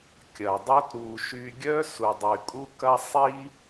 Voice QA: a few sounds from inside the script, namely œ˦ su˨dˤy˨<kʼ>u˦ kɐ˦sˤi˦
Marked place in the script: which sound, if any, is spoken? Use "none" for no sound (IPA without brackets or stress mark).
kʼ